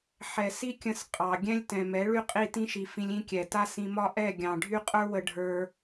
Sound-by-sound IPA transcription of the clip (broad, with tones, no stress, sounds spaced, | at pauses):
ħ ɛ˨ s i˦ kʲ ə̃˧ s qʼ ɑ˨ ɡʲ ɛ̃˦ lʲ t ɛ̃˨ m ɛ˨˦ ɭ y˦ qʼ i˦˨ t ĩ˦ ʃ i˨ f ĩ˧ lʲ ĩ˦ kʲ ɛ˨ t a˦ s ĩ˧ m ɒ˦ ʔ ɛ˦˨ ɡʲ ɑ̃˨ ɖʱ y˦ qʼ ə˞˦ w ə˧ ɖʱ ə˞˧